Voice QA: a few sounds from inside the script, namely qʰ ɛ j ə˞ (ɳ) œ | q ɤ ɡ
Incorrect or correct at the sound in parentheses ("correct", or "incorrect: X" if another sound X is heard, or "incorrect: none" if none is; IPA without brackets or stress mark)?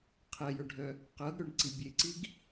incorrect: ɖʱ